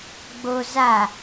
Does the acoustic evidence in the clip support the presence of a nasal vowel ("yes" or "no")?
no